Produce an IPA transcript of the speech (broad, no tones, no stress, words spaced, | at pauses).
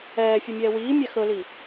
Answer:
ɛːfʲɵmʲɛː wiː mʲaxɵli